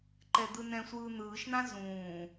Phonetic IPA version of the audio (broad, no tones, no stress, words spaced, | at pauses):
ǃɛd̪ɯnɛ̃sʷɯː n̪ɯːʃn̪ã zũː